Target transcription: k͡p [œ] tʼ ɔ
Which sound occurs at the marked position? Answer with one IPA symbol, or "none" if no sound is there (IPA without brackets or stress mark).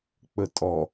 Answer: ə